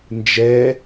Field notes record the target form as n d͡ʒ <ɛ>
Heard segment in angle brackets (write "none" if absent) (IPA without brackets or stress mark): ɛ